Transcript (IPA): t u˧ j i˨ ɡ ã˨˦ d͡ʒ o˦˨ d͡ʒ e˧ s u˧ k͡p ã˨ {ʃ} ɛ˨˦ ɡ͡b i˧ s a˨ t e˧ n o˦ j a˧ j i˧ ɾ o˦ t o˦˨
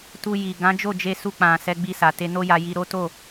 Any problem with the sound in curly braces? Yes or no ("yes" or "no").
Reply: yes